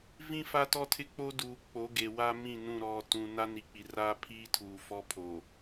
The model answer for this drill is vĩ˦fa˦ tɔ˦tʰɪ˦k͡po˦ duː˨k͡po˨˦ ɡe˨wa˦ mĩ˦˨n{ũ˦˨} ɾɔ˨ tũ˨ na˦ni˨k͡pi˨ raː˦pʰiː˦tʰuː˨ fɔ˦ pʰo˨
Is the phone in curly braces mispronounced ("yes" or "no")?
no